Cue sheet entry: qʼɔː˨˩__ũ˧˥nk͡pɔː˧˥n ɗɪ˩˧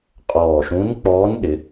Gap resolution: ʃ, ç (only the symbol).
ʃ